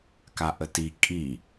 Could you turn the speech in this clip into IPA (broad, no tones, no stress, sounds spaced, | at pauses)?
k a ʔ ə t i kʼ i